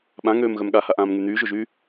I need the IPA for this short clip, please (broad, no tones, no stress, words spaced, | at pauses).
ɓãŋøːm ɣœmɠahaʔãːm ŋyn̪yːʒoʒyː